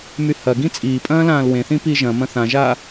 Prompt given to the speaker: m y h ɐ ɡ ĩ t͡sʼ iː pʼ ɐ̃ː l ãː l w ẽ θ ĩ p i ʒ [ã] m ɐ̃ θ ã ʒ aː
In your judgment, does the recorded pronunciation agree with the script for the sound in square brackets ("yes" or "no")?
no